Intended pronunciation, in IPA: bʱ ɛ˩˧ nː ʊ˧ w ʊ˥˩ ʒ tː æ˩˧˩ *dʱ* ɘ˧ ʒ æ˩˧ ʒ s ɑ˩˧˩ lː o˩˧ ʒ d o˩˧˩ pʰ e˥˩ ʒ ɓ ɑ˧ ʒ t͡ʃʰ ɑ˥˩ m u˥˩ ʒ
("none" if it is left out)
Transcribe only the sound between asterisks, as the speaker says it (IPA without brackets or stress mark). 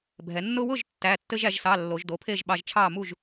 tː